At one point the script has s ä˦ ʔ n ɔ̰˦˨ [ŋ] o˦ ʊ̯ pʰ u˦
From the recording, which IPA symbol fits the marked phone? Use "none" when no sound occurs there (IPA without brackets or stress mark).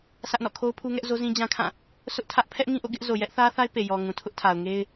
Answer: kʰ